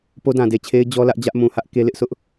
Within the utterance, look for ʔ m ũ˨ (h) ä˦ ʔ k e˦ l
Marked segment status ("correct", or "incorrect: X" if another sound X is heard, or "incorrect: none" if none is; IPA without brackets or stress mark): correct